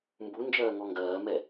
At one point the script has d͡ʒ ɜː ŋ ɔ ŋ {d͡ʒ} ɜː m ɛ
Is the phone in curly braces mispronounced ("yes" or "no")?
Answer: yes